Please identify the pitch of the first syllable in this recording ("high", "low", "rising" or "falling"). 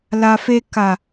low